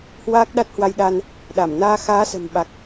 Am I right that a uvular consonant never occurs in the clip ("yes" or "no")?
yes